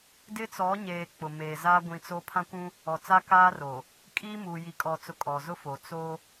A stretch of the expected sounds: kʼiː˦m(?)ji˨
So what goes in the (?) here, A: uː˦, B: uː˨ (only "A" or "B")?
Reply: B